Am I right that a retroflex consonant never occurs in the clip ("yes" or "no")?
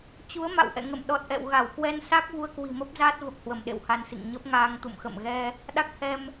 yes